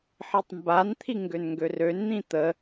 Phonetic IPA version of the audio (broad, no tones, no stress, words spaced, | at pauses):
ħitˤmbant̪ʰi ŋɡønŋɡørønn̪ĩ t̪ə